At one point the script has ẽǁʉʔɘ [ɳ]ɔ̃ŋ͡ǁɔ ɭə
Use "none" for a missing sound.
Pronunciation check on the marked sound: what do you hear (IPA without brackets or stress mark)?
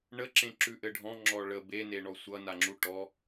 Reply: ɖʱ